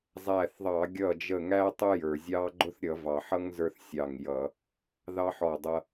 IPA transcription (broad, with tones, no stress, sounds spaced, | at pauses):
zˤ æ˧˩ θ ðˤ ɑ˧˩˧ ɡʲ ʌ˧˩ d͡ʒ ə˧˩ ŋ æ˦ tˤ ʊ˦ j ə˞˩ zʲ ɑ˦ ɡ͡ǃ ʊ˦ θ ɾʲ ʌ˧˩˧ v ɑ˩ ħ ʌ˦ ŋ z ə˞˦ θ sʲ ɑ˧˩ ŋ j ʌ˧˩˧ | ð ɑ˦ ħ ɔ˧˩ dˤ ʌ˦